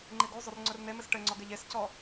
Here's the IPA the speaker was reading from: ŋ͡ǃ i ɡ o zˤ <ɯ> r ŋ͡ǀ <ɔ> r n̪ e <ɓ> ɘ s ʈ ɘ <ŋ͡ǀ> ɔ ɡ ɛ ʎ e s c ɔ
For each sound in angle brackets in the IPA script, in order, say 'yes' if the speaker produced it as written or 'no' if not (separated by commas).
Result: no, no, no, yes